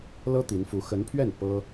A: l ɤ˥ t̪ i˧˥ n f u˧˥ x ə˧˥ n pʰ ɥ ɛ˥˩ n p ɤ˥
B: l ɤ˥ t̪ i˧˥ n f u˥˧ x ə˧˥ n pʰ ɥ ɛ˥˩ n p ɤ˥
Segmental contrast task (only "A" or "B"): A